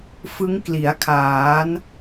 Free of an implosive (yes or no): yes